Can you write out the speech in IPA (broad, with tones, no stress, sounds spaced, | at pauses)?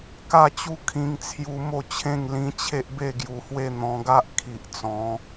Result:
k a˥˧ t͡ɕ u˦ kʰ ĩ˧ ŋ t͡sʰ j u˧ m o˥˧ t͡ɕʰ ẽ˥˧ ŋ l ĩ˧ t͡ɕʰ e˦ ʔ b e˥˧ ɡ j u˧ h w e˥˧ n̪ ɔ̃˧ ɡ a˦ ʔ kʰ i˨ ʔ t͡s ɔ̃˨˦